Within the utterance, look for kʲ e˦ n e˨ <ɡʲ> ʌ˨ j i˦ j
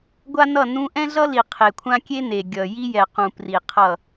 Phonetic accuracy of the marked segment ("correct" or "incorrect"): correct